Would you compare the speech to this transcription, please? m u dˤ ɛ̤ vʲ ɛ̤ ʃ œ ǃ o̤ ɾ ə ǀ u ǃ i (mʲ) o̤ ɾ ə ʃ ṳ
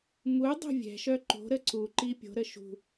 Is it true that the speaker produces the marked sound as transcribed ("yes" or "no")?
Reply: no